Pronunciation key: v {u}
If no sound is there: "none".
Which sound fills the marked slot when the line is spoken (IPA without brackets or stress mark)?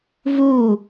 u